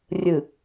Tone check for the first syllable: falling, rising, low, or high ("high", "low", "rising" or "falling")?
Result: low